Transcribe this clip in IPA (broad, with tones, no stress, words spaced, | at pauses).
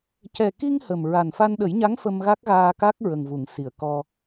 cɛ˨˩ki˧ŋ hə˨˩mɹa˨˩nfa˧n ɗə˨˩˦jɲa˧˥ŋ fə˧mɣa˦˥k̚ɣaː˧ka˦˥k̚ ɹə˨˩ŋvu˨˩˨ŋsi˨˩˨ə̯ kɔ˧